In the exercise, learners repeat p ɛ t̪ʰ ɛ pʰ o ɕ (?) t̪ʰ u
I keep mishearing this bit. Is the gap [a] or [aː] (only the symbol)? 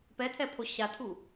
a